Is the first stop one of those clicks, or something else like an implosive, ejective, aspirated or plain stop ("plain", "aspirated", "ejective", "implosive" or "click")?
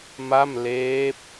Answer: plain